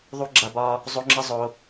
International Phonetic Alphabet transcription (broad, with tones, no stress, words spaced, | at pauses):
ðˤu˦ ɡ͡ǁa˦bɒ˦ | zˤo˦ŋ͡ǁə˦ zˤo˦